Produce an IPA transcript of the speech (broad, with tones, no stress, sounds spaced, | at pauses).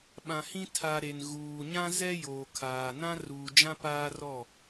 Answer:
ɓ ã˨ h ĩ˦ tʰ a˨ ɾ e˨ n ɣ uː˨ ɲ ã˦ z ɛ˦ j oː˨ kʰ aː˨ n ã˦ r uː˨ d͡ʒ ã˦ p aː˦ r ɔ˦˨